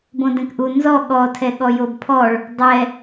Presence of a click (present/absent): absent